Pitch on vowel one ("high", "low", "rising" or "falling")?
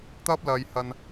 high